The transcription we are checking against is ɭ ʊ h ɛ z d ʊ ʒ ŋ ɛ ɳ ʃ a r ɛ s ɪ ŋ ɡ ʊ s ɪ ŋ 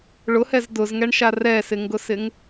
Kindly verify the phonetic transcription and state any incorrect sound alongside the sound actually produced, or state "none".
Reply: ʒ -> z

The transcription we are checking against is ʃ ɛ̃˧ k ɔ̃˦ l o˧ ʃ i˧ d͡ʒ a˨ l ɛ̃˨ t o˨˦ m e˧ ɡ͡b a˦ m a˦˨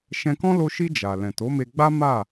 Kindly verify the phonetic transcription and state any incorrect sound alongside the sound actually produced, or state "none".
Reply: none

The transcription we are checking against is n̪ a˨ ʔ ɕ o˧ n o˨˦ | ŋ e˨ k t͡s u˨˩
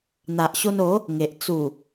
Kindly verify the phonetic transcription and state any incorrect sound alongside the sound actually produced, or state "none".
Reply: k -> ʔ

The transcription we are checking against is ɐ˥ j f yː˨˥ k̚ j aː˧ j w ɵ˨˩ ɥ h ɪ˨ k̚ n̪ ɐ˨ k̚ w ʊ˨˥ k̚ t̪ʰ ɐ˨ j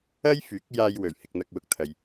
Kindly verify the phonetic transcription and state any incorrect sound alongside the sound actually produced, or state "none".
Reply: none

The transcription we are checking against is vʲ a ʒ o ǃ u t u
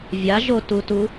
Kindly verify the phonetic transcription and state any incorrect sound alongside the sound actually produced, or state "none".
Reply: ǃ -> t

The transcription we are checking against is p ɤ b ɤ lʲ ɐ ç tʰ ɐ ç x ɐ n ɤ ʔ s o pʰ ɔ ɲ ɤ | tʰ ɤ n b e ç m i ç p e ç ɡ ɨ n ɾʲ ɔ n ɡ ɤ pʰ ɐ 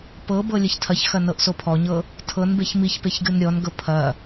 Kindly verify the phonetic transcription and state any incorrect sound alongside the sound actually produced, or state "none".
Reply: none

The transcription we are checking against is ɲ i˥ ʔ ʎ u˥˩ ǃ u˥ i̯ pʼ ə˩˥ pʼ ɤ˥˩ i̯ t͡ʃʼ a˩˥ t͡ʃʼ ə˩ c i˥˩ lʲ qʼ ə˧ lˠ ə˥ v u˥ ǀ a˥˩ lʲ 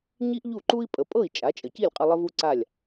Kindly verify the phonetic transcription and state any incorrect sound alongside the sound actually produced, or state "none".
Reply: none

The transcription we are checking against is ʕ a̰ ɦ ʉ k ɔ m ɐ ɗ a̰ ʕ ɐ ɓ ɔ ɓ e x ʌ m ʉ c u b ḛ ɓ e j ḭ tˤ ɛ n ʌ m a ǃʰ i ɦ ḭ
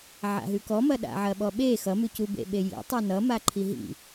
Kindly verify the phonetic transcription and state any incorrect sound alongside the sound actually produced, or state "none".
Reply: none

